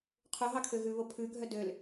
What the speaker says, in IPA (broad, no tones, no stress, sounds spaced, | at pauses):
qʰ o ɦ ɑ kʰ ø ɣ ʉ β o pʰ ʉ ɡʱ œ d ø l